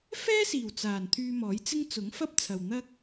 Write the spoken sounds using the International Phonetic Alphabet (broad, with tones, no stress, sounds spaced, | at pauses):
f ɛː˥ s iː˨˩ w t͡s aː˨˩ n t̪ʰ yː˧ m ɔː˨˥ j t͡s ɪ˥ ŋ t͡s ʊ˨˥ ŋ f ɐ˥ p̚ t͡sʰ ɐ˨ w n̪ ɐ˥ k̚